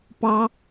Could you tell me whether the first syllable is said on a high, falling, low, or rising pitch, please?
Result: high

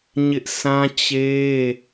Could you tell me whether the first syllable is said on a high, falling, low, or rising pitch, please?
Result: high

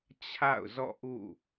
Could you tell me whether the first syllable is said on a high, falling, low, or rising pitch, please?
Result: falling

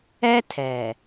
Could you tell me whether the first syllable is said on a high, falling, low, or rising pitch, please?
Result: high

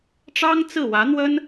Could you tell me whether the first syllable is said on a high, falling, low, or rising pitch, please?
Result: high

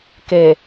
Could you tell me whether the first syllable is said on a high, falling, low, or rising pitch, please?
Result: low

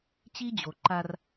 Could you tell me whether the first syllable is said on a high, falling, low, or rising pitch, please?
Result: high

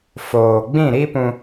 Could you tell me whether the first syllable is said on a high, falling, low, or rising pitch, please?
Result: low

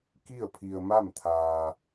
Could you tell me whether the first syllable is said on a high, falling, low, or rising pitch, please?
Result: falling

